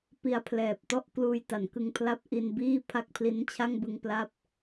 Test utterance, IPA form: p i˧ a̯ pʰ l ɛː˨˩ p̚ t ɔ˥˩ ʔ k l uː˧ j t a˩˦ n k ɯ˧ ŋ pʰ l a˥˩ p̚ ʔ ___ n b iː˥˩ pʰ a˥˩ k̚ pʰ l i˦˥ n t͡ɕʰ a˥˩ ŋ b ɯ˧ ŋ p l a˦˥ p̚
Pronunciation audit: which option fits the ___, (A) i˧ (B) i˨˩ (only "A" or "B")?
A